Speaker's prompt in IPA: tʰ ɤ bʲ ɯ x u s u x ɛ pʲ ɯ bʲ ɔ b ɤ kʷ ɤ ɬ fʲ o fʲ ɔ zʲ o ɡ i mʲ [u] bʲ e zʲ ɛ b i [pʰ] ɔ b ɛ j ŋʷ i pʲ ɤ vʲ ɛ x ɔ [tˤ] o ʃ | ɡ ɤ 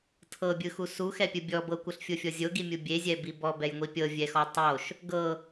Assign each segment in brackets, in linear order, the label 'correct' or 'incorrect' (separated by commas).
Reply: correct, incorrect, correct